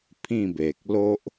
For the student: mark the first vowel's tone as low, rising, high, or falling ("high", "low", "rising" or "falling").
falling